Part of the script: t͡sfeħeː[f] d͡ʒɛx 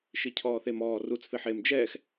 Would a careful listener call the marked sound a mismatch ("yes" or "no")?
yes